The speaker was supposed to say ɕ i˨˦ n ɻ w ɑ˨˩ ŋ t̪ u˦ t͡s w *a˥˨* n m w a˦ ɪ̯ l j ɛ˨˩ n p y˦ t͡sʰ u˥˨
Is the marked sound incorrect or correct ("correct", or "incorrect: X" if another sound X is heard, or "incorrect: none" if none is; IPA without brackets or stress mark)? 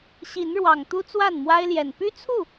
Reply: correct